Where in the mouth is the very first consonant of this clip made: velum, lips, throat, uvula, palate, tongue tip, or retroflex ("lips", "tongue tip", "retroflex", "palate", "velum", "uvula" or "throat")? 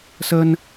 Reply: tongue tip